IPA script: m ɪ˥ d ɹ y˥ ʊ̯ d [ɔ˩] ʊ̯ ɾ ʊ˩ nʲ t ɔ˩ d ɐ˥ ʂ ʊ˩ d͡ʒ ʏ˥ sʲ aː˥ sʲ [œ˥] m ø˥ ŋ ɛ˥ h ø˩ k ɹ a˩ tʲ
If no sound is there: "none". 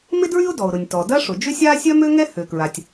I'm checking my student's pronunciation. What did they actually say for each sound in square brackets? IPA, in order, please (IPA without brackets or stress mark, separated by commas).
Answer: ɔ˩, œ˥